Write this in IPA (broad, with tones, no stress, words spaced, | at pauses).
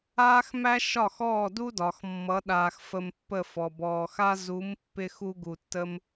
aː˥xmæ˥ ʃɒ˥˩xɔː˥˩du˥dɒ˩x mːʌ˩˥ɗaː˩x fə˧mpːə˥˩fɔ˩ bɔː˩xa˥ zu˩˥m pːɪ˥xu˥ɡu˩tːə˥m